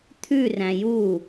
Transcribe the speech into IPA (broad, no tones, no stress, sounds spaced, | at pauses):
t̪ʰ ʉ r æ̃ j u